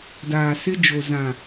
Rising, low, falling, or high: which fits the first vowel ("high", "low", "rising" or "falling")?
low